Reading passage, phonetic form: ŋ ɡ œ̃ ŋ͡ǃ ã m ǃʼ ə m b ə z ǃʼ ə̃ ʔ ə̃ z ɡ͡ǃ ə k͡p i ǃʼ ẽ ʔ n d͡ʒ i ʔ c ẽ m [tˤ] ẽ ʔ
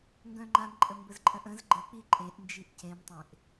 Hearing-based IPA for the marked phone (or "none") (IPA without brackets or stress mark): tˤ